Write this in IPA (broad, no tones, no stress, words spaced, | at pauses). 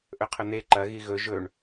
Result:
ʔɵqʰɵn̪e ǃɐ ɣiɣɵ ʒɵɳ